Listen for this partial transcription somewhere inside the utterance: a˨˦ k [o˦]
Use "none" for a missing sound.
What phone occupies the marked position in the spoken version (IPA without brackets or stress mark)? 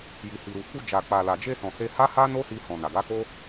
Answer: o˦